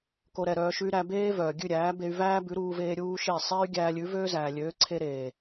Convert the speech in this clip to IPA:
k o˧ ɾ ɛ˨ ɾ œː˧ ʃ ʉ˦ y̯ ɾ æ˧ b eː˦ v œː˨ ɡʲ ʉ˦˨ ɾʲ æː˨˦ b e˧ y̯ v æː˦ b ʉ˨˦ ɾ uː˧ v eː˧ ɾʲ uː˦ ʃ e˦˨ sˤ eː˦ y̯ ɡʲ æː˧ lʲ ʉ˨˦ v øː˦ z æː˨ lʲ øː˨˦ ǀʰ e˧ ɾ eː˨

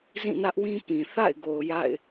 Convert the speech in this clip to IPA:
z ĩ˦˨ n ä˦ ʔ w ĩ˦ p ĩ˨ θ a̰˦˨ ɪ̯ ɡ o˨ ʊ̯ j a̰˦˨ ɪ̯

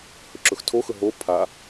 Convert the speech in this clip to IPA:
h ɵ ǁ ɵ x tʰ o x ɵ ɦ o pʰ a

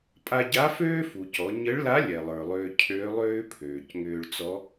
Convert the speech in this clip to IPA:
pʼ a˧ ɟ a˧˥ f øː˥ f u˩ c ɔ˩˧ ɲ ə˧˥ ɭ l a˧˥ lʲ ɛ˩ lˠ ə˞˩ lˠ ʏː˧ cʰ øː˧˥ lˠ ʏː˥ pʰ øː˩ c ŋ ʏː˧ ɭ t͡s ɔ˧˥

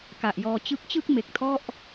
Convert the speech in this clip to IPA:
k a˨˩ ʔ j ɔː˧ t͡ɕ ɯ˦˥ k̚ t͡ɕ ɯ˥˩ k̚ m e˨˩ k̚ tʰ ɔ˥˩ ʔ

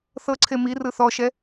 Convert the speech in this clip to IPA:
θ ɤ ǀʰ e m i r ɯ θ ɔ ʃ ɛ

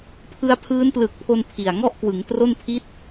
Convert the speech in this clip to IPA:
pʰ ɯ˧ a̯ pʰ ɯː˦˥ n p l ɯː˨˩ k̚ pʰ o˧ n pʰ i˨˩ a̯ ŋ ɔ˥˩ ʔ k w ɯ˩˦ ŋ t r o˥˩ n pʰ i˦˥ t̚

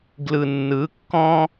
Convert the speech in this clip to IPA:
ɡ l ɯ˨ nː ɯ˨˦ kː ɔ̃˦

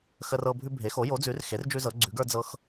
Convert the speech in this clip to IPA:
x ə˦ r ɤ˦ bʱ ʉ˦ bʱ e˩˥ x o˩˥ j o˩˥ d͡z ʉ˩˥ r x e˩˥ r d͡ʒ ʉ˦ z ɤ˩˥ ɡ͡ǀ ʉ˩˥ ɡ ə˞˦ d͡z ɤ˦ x

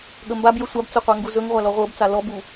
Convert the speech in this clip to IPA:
ɠ ə m b a b j ə sʷ a b t͡s ɵ qʷ æ ŋ ɡ u z ɵ ŋ ʁʷ a l ɔ ʁʷ ɤ b t͡s a l ɔ b u

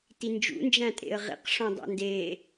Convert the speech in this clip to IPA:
t i n d͡ʒ ṵ n d͡ʒ æ̃ tʼ ḛ ə̯ ʁ ḭ q ʂ õ dˤ æ̰ n d e

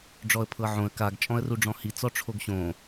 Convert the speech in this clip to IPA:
ɖ͡ʐ ɔ ə̯ pʰ ɤ ʕ õ ə̯ k a ɡ t͡ʃʼ ɔ̃ ə̯ r u ɖ͡ʐ ɔ̃ h i t͡s ɔ ʈ͡ʂʰ o ɡ ɕ õ

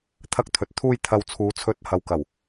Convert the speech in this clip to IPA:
t̪ʰ ɐ˧ k̚ t̪ʰ ɵ˨ t̚ t̪ʰ uː˧ j t̪ʰ ɐ˨ w t͡sʰ uː˨˧ t͡sʰ ɵ˨˥ t̚ h ɐ˨ w k ɐ˨˩ w

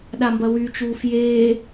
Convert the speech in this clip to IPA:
ɗ a m b ɐ w y t͡ʃ uː f j eː

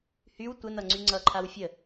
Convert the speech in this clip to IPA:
h y w tʷ ə n ʌ ŋ͡ǀ y ŋ͡ǀ ʌ ǃʰ a w fʲ ə

